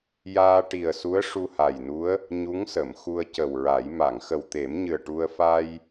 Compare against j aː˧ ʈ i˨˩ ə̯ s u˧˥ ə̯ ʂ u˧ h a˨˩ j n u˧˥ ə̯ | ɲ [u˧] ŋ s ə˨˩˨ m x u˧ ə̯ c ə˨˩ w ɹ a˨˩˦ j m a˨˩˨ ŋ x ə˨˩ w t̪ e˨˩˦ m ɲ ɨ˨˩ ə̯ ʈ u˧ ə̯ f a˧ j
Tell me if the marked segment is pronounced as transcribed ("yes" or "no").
no